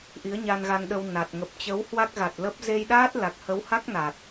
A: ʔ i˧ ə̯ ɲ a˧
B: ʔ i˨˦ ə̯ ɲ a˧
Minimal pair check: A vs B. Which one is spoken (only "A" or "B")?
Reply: B